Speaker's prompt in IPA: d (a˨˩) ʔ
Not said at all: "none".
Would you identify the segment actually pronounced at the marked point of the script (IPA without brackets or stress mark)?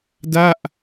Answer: a˥˩